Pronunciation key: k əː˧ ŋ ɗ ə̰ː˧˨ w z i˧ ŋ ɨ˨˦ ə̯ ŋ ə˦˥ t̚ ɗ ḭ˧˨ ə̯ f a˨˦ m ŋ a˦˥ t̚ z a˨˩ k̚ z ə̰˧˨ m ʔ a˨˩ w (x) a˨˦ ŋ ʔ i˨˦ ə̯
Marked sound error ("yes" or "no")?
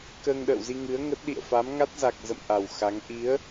no